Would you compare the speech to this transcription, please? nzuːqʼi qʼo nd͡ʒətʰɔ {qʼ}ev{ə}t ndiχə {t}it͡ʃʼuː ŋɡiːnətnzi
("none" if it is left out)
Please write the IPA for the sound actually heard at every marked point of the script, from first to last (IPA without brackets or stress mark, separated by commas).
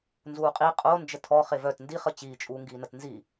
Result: χ, œ, t͡ɕ